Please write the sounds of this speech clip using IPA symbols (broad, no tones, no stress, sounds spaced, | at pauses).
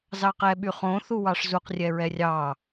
z ɑ q ɛ ɓ y χ õ θ u w ɑ ʂ z u q rʲ ɛ ɹ ɛ rʲ ɑ